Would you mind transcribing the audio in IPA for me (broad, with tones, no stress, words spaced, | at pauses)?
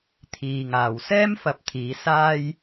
t̪ʰiː˨ŋaː˨w sɛː˥mfɐ˨˥p̚ t̪ʰiː˨˥saː˥j